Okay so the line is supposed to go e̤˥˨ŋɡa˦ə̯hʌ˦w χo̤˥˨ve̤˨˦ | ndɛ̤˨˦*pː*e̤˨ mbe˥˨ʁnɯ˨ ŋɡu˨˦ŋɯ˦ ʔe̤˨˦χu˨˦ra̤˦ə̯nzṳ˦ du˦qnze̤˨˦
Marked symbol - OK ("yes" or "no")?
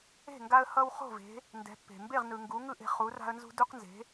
yes